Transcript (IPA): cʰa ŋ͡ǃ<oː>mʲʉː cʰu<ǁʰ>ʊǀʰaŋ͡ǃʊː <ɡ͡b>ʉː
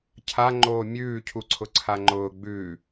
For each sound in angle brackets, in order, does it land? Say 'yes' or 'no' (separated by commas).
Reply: yes, no, yes